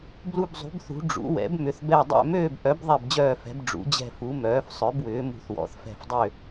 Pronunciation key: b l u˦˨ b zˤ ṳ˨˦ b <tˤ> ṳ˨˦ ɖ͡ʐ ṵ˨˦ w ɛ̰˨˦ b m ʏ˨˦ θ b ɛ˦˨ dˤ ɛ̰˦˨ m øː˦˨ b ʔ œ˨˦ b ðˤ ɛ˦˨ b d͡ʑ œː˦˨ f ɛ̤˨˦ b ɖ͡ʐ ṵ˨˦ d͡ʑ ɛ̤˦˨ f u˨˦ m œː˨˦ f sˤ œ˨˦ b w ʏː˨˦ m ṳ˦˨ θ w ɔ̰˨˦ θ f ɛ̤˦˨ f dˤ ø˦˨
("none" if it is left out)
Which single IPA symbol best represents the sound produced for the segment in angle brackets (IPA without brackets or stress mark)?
θ